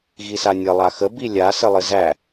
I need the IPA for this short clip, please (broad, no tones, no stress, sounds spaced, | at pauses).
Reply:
ɣ i s a nʲ ə lˠ a x ə b i lʲ a s ɘ lˠ ɘ z æ